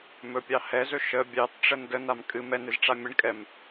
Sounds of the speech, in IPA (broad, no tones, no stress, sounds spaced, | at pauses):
m ɵ pʲ ɑ h ɛ z ɵ ʃ ə bʲ ɑ t ʈ͡ʂ ə n d ə n a m kʼ ɨ m ɛ n ɨ z ʈ͡ʂ a mʲ ə ɳ kʼ ɛ m